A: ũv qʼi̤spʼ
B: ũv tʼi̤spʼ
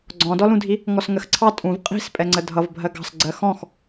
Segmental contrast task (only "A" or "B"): A